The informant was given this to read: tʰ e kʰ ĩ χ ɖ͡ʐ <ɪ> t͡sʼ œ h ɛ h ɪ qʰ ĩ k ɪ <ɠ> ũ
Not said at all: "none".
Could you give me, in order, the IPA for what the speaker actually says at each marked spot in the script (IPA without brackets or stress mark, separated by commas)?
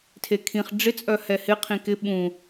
ɪ, ɓ